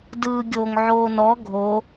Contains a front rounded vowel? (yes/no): no